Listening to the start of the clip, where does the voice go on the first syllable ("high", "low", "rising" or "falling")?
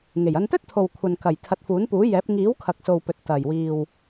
low